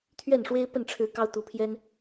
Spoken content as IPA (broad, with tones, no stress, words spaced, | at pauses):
t̪ʰɥɛ˥˨nʂwe˦ɪ̯ pə˥˨nʈ͡ʂʰɻ̩˨˦ kɑ˦ʊ̯t̪u˨˩pʰjɛ˦n